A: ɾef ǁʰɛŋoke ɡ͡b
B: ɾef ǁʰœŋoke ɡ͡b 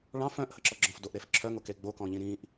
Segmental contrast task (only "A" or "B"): B